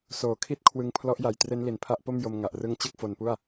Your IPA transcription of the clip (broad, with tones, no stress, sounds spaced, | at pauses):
s oː˨˩ kʰ i˥˩ t̚ kʰ w ɯ˧ ŋ pʰ l ɔ˦˥ ʔ j a˨˩ j t r e˦˥ n l i˨˩ n pʰ a˦˥ ʔ p o˥˩ m j o˧ m ŋ a˨˩ ʔ r ɯ˦˥ ŋ t͡ɕ ɯ˥˩ k̚ f o˧ n p u˥˩ a̯